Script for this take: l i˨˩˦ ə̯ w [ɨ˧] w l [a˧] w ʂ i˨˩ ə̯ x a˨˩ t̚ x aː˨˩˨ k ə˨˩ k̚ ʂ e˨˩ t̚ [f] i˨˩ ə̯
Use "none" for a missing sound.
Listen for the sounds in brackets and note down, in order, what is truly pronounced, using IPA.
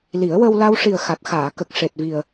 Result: ə˧, a˧, v

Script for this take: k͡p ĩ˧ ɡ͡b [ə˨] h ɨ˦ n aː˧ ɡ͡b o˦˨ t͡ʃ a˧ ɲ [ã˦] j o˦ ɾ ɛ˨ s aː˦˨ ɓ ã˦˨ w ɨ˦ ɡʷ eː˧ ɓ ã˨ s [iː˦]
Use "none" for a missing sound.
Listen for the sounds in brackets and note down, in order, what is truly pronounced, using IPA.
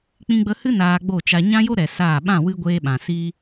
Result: ə˧, ã˦, iː˦

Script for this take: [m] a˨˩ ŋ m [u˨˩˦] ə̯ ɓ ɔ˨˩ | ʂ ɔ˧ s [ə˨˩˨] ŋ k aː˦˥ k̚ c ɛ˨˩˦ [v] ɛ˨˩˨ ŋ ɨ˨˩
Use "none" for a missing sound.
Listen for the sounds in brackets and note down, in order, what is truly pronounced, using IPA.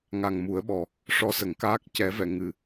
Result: ŋ, u˨˩˦, ə˨˩˦, v

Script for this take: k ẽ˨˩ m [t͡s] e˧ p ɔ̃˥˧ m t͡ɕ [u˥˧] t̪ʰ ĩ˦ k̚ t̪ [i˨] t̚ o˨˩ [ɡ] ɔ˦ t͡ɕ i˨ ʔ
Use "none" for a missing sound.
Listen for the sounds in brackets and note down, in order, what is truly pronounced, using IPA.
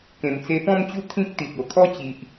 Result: t͡s, u˥˧, i˨, kʰ

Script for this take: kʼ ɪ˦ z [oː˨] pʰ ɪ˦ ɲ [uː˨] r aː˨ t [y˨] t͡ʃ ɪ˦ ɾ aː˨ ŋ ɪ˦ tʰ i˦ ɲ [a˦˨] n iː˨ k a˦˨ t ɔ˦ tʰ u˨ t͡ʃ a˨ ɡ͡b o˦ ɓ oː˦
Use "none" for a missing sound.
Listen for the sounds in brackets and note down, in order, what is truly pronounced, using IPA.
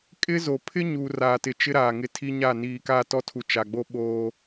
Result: o˨, uː˨, ɪ˨, a˦˨

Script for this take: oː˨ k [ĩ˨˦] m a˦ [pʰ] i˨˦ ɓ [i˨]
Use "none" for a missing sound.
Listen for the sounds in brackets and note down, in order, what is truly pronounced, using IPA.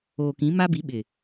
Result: ĩ˨˦, b, ɪ˨

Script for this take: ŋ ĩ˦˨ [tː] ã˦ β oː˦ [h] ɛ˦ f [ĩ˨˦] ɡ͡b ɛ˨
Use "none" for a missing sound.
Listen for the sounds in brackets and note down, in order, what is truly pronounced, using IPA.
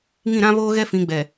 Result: ɾ, ɣ, ĩ˨˦

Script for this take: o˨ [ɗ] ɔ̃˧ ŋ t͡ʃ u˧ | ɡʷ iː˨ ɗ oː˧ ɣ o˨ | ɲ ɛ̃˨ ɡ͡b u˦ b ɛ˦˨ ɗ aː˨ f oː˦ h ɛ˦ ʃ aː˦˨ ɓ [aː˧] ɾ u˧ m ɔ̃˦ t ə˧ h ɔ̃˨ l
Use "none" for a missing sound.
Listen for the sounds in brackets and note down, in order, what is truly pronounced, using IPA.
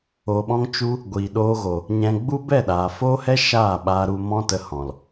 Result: ɓ, aː˧

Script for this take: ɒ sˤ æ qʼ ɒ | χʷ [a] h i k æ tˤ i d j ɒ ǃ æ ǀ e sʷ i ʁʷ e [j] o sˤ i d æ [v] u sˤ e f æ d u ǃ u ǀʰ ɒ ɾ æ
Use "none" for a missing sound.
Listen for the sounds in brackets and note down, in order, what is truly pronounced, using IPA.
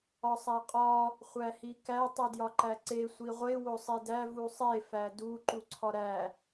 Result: æ, w, v

